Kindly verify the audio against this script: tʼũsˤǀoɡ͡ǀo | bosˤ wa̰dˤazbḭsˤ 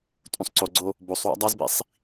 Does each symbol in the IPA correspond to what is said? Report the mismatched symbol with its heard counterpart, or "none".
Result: none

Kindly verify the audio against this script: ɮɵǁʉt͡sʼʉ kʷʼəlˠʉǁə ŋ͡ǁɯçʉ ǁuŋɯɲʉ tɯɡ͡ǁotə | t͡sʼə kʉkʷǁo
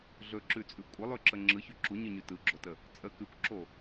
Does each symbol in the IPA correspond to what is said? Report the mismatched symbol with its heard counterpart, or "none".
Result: ŋ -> ɲ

